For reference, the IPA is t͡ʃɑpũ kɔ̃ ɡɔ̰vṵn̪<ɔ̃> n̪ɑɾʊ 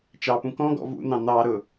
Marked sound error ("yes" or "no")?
yes